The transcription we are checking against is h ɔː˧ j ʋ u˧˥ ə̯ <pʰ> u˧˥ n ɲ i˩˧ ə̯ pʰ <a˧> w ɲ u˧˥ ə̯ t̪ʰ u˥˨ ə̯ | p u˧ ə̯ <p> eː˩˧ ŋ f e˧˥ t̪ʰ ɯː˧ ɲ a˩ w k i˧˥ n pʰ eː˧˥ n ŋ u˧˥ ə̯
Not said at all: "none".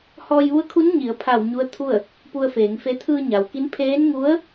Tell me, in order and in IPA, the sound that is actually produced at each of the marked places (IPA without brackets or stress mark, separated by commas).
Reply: kʰ, a˧˩, f